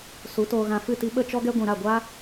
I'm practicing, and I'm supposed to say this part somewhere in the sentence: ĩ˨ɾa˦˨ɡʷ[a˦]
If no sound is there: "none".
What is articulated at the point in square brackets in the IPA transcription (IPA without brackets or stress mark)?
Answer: a˦